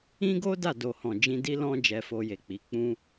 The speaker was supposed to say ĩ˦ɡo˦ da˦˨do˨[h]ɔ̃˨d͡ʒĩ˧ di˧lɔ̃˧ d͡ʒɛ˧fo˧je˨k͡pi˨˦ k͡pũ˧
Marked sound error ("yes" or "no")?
no